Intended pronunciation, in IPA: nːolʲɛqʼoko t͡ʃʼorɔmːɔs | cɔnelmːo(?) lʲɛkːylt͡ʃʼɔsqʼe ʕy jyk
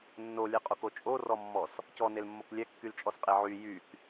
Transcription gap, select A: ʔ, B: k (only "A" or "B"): B